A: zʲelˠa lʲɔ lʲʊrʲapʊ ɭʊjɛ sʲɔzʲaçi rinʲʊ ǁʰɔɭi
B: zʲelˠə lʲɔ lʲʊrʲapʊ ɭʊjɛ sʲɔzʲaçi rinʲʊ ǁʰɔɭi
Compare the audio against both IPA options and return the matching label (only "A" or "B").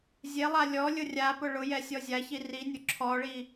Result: A